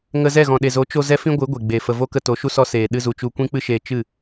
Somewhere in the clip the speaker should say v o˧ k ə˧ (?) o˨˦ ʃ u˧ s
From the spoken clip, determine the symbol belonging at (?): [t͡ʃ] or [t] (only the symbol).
t